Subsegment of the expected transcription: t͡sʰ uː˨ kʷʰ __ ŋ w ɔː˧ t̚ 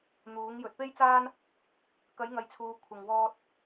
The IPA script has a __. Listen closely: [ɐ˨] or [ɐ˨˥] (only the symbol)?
ɐ˨